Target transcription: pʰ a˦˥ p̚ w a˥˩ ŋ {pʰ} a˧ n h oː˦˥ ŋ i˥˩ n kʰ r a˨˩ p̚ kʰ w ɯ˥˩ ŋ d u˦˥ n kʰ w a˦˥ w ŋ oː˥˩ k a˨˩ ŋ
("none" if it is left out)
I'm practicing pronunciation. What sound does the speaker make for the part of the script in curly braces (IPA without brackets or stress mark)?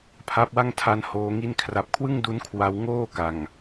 tʰ